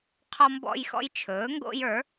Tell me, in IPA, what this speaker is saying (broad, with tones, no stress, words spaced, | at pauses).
qʰɔ˦mbɔ̰˦jxɔ̰˦j t͡ʃʰɵː˩˥ŋɡo̰˦jə˞˩˥